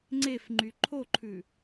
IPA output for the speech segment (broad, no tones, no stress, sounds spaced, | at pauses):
ŋ͡ǀ e f ŋ͡ǃ y ǃʰ o ǃʰ ʉ